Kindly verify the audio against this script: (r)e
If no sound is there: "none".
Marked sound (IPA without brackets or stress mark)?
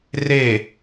r